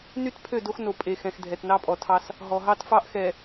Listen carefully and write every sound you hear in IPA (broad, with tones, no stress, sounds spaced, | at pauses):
n y˦ t pʰ ø˦˨ d o˦ x n o˨ pʼ e˨ x ɛ̃˨ x dʱ ɛ˨ t n ɑ˦ pʼ ɔ˨ tʰ ɑ˦ s | ɦ ɔ˨ ɦ ɑ˦ t f ɑ˦ ʔ x ɛ˨